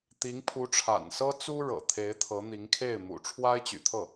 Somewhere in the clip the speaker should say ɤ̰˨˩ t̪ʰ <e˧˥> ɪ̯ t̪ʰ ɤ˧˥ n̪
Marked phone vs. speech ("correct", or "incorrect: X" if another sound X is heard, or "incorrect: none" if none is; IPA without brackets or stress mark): correct